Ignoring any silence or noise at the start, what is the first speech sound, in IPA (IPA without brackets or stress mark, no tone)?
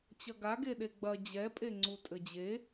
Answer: t͡ɕ